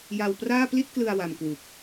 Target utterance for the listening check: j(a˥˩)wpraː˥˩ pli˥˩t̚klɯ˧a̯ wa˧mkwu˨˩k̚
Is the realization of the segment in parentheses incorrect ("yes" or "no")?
yes